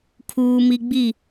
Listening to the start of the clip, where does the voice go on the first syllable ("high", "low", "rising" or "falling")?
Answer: high